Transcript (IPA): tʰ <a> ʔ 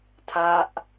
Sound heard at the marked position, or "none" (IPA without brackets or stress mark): a